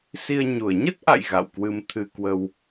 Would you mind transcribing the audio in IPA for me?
si˧ə̯ɲu˧˩ə̯ ɲə˦˥t̚ʔa̰˧˨j ɣa̰˧˨wkwɨ˧mt̪ʰɨ˧kwə˧w

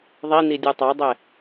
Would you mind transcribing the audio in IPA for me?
ðˤinidʲu tˤɑdˤɛ

